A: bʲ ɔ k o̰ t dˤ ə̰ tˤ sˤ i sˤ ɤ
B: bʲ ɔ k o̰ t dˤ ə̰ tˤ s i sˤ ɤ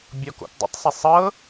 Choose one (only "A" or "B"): B